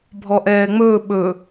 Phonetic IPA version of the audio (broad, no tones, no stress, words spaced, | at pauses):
bʱɔʔɛːŋ͡mɵː ɓɵ